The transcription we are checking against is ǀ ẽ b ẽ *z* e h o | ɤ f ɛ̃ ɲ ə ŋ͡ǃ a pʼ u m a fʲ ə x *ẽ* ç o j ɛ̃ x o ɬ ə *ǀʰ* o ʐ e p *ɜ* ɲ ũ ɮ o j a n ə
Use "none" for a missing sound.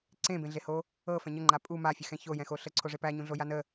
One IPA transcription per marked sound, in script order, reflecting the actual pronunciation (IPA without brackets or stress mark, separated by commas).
ɮ, ɛ̃, ǀʰ, æ